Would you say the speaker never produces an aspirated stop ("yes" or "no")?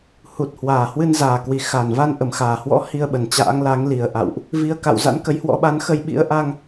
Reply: yes